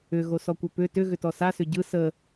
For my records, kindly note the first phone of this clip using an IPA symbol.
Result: ʏ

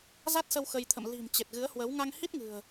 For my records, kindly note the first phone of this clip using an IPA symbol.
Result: z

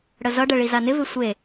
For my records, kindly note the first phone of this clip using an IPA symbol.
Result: ɽ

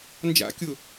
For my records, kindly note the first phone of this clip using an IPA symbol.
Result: n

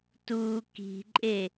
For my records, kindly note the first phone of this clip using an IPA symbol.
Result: t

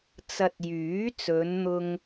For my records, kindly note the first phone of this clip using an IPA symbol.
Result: t͡s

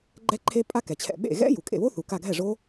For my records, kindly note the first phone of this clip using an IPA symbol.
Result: ɡ͡ǃ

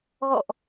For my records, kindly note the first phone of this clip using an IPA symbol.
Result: ɣ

